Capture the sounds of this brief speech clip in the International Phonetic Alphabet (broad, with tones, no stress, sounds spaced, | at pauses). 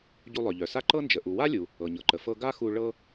ɟ u˧ lˠ œ˩ ʎ œ˩ s a˥ ǃ ɤ˥ n d͡ʒ ə˩ ʔ u˩ w a˥ lʲ u˩ | ɤ˩ ɲ ɤ˩ ǃ ə˩ f ɤ˧ ɡ a˥ x u˧ ɭ ɤ˥